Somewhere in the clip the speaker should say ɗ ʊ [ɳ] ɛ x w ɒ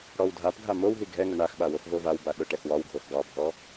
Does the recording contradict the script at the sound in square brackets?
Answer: yes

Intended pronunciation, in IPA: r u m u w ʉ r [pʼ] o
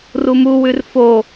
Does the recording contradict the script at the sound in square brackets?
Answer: yes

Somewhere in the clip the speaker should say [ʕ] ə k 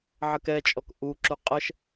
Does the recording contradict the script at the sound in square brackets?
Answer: no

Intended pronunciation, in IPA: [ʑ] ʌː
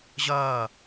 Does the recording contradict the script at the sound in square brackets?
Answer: no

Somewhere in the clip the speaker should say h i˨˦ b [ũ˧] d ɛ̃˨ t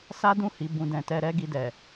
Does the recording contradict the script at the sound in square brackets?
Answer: no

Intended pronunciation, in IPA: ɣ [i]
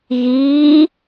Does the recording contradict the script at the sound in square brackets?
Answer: yes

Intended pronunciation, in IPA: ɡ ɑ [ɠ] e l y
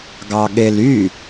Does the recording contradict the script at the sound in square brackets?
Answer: no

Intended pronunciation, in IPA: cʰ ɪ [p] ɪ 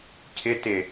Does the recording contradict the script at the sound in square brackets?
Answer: yes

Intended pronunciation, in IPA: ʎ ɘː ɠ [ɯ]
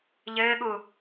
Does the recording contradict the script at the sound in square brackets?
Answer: yes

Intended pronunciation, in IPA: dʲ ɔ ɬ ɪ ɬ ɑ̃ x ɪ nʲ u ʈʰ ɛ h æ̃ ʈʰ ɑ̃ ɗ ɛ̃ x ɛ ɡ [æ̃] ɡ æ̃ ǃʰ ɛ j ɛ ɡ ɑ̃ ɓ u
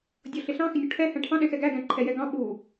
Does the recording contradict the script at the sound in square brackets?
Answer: yes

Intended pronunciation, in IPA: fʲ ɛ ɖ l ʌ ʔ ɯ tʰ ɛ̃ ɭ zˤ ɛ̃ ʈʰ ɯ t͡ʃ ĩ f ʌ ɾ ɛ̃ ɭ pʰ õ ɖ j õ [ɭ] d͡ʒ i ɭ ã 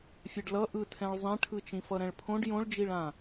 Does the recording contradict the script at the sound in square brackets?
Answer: no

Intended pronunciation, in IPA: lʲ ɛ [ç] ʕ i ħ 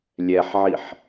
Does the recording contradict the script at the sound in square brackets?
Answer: yes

